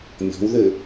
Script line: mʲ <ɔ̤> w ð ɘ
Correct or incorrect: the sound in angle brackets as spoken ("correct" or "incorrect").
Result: correct